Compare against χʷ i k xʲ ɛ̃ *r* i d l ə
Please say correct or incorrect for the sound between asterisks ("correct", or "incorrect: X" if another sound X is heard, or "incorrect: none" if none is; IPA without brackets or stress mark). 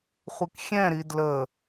incorrect: ɾ